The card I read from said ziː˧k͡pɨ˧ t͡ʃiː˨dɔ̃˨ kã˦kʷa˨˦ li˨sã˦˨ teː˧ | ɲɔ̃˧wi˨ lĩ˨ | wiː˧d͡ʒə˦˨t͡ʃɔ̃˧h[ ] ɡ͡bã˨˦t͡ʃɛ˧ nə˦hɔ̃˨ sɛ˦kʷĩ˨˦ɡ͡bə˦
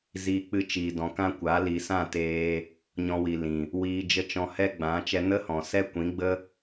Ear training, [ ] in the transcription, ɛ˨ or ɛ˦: ɛ˦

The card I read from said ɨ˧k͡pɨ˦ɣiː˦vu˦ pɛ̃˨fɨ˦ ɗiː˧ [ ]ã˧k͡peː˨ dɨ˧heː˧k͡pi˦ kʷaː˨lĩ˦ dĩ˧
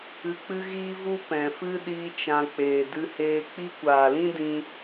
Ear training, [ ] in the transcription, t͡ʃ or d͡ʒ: t͡ʃ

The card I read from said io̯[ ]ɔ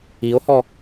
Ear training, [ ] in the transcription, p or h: h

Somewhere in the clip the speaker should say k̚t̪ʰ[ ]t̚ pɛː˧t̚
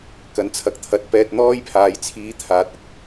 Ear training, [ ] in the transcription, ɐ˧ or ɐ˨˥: ɐ˨˥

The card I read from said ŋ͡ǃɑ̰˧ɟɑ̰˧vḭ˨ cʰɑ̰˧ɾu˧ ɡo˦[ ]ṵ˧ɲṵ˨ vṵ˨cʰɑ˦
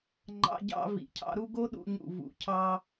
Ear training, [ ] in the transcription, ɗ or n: ɗ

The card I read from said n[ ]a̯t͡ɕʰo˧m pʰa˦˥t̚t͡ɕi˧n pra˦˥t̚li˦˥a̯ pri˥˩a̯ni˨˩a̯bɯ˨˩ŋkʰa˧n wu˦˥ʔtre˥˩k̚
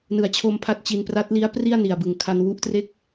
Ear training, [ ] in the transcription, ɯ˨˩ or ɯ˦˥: ɯ˨˩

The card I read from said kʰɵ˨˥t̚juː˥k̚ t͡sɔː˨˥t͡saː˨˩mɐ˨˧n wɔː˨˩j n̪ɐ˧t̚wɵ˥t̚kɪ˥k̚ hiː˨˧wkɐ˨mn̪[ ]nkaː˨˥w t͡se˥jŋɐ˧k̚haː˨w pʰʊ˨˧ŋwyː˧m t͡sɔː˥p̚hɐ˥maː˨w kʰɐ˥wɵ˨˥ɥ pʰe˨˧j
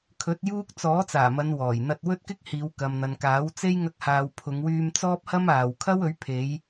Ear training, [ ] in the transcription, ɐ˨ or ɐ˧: ɐ˨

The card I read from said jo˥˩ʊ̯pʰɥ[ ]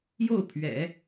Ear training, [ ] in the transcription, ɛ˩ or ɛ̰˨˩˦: ɛ̰˨˩˦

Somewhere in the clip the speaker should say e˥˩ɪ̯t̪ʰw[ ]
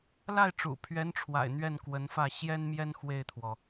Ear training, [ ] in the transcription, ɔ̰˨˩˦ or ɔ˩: ɔ˩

